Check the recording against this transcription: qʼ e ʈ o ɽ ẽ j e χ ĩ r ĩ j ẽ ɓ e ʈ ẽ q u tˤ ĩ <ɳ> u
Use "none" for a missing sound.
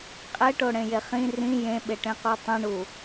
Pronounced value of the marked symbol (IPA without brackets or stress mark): ɳ